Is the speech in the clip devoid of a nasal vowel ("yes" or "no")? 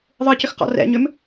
yes